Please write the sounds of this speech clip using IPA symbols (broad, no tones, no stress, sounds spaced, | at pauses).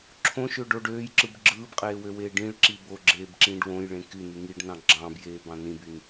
ǁʰ õ ʃ ø ɖ o ɖ øː j ǁ ɯ b ɡ͡ǁ ɯː b qʼ eː w ø w eː ɖ ĩ ɭ ǁ i b o ɡ͡ǁ eː b ǁ ĩː ɖ w õ j ɭ ẽ k y n y ŋ i ɖ n ɑ̃ ɡ͡ǁ ɑ̃ b j eː b ɑ̃ n ĩ b y n